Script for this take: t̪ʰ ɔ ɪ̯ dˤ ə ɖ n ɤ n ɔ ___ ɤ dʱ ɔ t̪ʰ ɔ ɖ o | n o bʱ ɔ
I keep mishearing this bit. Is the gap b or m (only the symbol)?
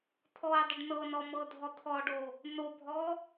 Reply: m